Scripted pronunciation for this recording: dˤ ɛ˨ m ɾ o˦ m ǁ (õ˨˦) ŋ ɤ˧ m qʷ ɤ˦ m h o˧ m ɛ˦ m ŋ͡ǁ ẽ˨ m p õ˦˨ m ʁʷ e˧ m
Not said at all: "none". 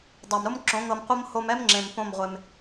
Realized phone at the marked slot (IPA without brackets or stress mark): õ˨˦